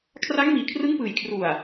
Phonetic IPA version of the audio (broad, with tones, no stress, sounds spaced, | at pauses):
kʰ r a˦˥ ŋ m iː˨˩ kʰ r ɯ˦˥ ŋ p ɯː˨˩ j kʰ r u˨˩ a̯